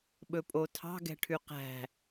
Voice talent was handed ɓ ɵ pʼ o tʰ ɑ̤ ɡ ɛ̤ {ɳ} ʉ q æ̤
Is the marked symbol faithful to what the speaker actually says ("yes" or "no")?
no